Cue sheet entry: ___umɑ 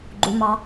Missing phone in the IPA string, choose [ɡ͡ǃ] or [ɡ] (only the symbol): ɡ͡ǃ